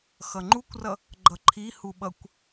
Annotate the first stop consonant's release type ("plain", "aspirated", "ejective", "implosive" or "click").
click